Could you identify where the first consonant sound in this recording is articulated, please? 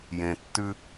palatal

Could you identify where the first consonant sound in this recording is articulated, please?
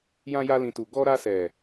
palatal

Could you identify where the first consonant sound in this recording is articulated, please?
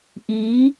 glottal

